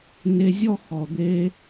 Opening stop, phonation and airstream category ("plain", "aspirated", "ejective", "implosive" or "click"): plain